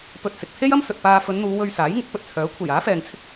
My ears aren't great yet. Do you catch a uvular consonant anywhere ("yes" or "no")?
no